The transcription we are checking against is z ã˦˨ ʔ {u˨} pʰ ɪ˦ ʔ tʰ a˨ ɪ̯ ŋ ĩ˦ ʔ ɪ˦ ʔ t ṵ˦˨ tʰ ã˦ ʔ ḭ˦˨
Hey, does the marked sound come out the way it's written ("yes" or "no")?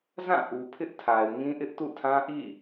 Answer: yes